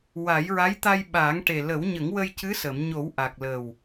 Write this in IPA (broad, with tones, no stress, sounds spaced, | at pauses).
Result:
w a˨˩˦ j ɹ a˧˥ j t̪ a˧ j ɓ aː˨˩˦ ŋ ʈ e˨˩ l ə˨˩˦ w ɲ ə˨˩˦ ŋ w ə˧ j c ɨ˧˥ s ə˨˩˨ m ɲ o˨˩˦ w ʔ a˨˩ k̚ l ə˨˩ w